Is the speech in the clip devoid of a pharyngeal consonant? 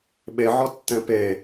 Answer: no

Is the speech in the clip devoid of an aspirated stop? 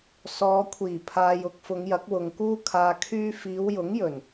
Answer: no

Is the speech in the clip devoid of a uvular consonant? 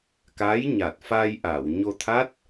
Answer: yes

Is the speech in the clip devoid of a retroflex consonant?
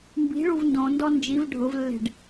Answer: no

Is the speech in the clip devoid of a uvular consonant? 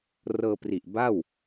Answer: yes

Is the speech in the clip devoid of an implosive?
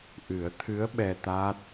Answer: no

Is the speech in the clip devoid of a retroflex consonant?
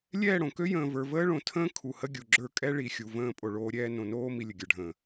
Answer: no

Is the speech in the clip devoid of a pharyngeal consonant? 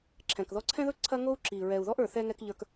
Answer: yes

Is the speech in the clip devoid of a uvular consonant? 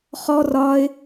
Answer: no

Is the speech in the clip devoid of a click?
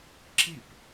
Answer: no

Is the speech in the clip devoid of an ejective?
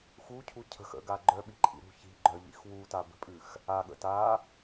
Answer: no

